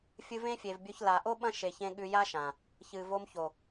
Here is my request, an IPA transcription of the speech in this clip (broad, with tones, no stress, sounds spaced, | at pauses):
fʲ ɨ˧ v ẽ˦ fʲ e˨ v bʲ ɵ˧ ç l a˨ ʔ o˦ ɓ ɐ̃˦ ʃ e˨ ç ẽ˧ ɠ ʉ˧ j a˦ ʃ ã˨ | ç ɨ˨ v o˧ m ç o˨